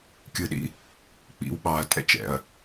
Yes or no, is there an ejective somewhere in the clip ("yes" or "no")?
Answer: yes